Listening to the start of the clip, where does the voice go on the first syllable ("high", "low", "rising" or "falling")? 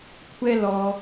high